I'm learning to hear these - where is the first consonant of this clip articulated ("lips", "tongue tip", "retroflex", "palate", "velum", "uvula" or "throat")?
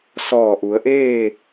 tongue tip